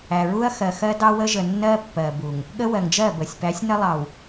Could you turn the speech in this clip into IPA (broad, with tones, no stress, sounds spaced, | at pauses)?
æ˨ ɹ u˦ ɐ̯ x ɜ˨ x ɜ˦ d ɑ˦ w ə˦ ʒ ə˨ nː ɜ˦ pː ɜ˨ b u˨ ŋ | ɠ ə˦ w ɜ˨ ŋ d͡ʒ ɜ˦˨ b ə˨ sʲ p æ˨˦ sʲ n ə˦ lˠ ɑ˨ w